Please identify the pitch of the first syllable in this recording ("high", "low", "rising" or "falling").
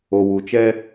low